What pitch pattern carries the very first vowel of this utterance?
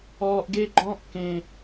low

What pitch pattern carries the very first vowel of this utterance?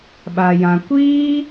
low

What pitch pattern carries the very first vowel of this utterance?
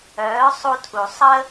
rising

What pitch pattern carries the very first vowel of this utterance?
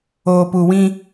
low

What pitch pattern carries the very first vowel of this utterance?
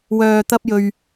low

